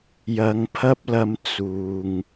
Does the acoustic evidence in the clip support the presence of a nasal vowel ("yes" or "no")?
no